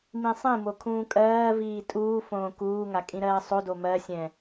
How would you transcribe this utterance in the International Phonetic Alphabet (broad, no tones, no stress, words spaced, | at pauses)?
mĩsˤĩmo kʰũːkʼɜːviː tʼuːfõː kuːŋa kʼĩɾɜːsˤodo mɜsʲɛ̃